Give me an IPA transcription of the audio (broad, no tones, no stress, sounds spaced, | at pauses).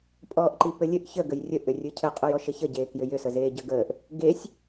pʼ ɔː ʔ ǃ i p ɘ lʲ ɘ ʔ ç ə ɡ ə j rʲ ə ʔ ʏ rʲ ɯ cʰ ə qʼ ø j ɔ ʃ ɘ ç ə ɟ eː k j ʏ j ʏ s ə z eː ɟ ə ɡ əː ʔ | ɡ e sʲ